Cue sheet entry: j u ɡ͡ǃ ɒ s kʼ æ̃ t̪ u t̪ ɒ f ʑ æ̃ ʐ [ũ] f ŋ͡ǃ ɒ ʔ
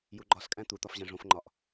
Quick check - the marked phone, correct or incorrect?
incorrect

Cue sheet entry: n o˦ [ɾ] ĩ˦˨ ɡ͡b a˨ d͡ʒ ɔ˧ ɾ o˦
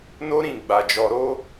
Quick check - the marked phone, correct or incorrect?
correct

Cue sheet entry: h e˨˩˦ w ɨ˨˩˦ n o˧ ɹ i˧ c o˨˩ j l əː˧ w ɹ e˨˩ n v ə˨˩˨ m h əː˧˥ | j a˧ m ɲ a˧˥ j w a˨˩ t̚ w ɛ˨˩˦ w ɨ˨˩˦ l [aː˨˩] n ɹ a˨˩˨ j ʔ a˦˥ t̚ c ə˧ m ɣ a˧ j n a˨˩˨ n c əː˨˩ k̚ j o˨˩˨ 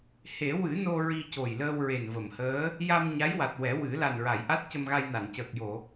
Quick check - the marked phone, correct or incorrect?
incorrect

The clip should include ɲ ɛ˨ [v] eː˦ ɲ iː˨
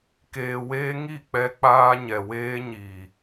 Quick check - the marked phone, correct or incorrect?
incorrect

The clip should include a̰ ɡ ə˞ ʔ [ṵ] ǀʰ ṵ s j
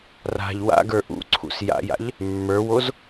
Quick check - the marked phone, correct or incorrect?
correct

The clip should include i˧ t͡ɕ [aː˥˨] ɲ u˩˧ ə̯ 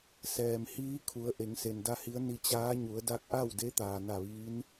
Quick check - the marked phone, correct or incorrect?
incorrect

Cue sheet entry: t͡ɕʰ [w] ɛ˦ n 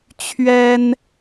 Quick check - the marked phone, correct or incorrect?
incorrect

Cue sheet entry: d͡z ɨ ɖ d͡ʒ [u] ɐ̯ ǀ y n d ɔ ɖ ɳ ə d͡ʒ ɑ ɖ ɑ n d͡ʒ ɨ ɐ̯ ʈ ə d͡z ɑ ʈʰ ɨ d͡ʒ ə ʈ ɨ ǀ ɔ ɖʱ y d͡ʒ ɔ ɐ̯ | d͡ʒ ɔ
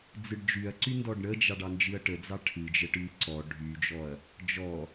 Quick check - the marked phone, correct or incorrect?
incorrect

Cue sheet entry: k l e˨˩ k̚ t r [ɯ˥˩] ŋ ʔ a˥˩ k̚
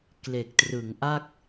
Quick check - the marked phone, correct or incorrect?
incorrect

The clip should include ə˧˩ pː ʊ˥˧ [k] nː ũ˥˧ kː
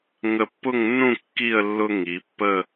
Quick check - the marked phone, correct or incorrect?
incorrect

